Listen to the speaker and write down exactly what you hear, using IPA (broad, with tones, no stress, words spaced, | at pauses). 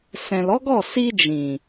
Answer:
sɛ̃˨lɔ˨˦ɡɔ˦˨ si˧ d͡ʒĩ˨